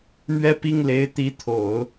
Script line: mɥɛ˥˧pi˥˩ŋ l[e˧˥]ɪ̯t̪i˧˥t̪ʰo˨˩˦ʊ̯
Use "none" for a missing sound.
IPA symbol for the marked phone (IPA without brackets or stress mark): e˧˥